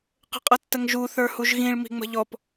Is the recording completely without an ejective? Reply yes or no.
no